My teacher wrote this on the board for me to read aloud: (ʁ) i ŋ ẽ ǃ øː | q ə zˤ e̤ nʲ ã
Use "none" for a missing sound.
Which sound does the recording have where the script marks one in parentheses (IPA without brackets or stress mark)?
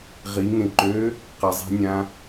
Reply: ʁ